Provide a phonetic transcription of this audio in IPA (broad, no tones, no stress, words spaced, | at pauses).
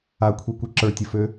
akʷʰikʷi ǁə˞tʲəfø